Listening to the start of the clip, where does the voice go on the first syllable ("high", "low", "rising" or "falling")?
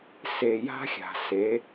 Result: low